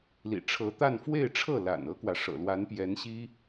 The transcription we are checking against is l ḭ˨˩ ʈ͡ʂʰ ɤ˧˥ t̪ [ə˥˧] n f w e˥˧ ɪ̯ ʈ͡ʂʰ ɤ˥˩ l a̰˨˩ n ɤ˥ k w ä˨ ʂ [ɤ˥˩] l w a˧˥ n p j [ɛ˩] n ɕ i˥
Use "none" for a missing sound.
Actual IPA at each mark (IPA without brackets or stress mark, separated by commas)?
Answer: a˥˧, ɤ̰˨˩, ɛ˧˥